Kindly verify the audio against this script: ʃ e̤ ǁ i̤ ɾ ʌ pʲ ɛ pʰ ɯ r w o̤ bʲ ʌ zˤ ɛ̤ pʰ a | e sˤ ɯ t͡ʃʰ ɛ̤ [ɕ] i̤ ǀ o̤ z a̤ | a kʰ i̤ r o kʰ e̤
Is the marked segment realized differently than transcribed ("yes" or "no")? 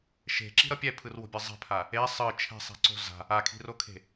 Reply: yes